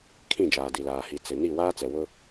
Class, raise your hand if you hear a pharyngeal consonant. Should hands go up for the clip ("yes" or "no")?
no